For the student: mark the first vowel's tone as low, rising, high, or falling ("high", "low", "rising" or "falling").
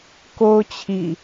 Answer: high